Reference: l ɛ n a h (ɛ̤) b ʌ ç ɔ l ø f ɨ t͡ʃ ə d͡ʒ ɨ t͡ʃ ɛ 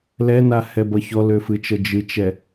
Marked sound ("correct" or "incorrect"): incorrect